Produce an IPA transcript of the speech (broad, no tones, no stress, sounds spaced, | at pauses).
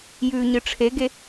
j ʉː ɲ ɨ ʈ͡ʂʰ e ɡ e